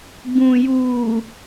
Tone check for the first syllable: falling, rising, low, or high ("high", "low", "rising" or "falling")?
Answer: low